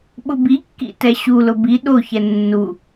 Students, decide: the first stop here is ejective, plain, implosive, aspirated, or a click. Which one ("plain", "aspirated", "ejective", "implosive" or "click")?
implosive